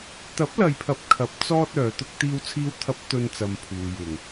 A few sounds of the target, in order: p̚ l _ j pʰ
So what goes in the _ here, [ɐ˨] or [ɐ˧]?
ɐ˨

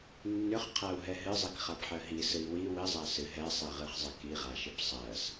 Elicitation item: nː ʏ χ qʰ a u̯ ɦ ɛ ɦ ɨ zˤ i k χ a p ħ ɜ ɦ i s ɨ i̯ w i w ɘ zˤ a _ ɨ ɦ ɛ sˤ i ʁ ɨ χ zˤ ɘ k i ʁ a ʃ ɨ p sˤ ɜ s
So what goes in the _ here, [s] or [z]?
s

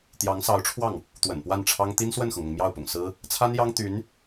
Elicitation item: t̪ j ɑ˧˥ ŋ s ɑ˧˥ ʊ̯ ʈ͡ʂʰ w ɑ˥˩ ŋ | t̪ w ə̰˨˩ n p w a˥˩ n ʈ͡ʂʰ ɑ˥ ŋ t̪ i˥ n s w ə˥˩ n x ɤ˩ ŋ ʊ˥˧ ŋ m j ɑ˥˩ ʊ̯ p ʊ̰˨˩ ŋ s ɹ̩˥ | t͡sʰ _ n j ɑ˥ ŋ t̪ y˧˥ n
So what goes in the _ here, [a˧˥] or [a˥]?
a˥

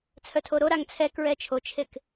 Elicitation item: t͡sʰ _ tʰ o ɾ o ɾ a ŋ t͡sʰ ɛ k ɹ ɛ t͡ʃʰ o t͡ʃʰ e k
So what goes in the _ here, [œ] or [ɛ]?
œ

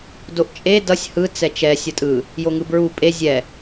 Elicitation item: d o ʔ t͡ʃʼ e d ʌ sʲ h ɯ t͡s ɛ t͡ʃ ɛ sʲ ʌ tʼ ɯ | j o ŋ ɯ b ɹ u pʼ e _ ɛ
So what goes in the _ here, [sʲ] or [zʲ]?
zʲ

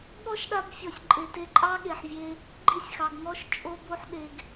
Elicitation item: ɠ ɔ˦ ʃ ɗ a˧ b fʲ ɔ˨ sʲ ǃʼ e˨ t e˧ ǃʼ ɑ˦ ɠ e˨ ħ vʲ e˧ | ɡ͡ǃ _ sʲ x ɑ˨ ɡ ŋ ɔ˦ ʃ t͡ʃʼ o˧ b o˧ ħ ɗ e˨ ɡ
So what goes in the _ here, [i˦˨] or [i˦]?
i˦˨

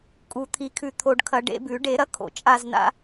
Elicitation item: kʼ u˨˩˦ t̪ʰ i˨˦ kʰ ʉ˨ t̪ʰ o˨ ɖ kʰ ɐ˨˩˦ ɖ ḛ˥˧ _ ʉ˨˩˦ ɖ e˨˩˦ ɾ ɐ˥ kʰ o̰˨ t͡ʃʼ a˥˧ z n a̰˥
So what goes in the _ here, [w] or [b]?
b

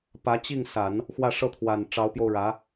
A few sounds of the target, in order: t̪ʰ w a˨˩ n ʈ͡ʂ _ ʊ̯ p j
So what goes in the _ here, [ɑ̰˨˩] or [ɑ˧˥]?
ɑ˧˥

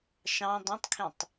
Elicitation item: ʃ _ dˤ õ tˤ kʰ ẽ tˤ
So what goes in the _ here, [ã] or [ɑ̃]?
ɑ̃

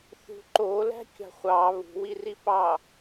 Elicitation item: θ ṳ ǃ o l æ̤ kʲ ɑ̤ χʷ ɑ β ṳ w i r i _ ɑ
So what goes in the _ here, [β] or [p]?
p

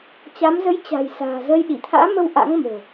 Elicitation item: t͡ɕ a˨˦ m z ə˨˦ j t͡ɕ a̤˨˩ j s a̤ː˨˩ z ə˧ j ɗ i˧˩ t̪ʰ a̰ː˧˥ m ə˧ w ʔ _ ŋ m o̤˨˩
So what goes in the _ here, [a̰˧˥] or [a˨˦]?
a̰˧˥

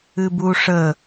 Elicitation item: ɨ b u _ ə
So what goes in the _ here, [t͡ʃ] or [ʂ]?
ʂ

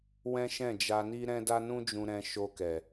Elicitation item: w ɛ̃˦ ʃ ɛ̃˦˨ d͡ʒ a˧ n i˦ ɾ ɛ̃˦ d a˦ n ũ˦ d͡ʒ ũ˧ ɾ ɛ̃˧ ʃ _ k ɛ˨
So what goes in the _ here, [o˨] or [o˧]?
o˧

